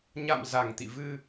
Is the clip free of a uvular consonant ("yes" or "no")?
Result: yes